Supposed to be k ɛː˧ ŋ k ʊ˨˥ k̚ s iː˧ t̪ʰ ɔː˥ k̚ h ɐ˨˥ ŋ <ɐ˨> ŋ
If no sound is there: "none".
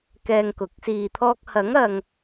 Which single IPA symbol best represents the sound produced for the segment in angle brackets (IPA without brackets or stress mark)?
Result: ɐ˨